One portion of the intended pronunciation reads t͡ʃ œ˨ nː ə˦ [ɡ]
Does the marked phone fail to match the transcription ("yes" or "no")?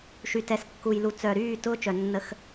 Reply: yes